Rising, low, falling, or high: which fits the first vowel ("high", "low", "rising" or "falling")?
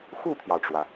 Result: falling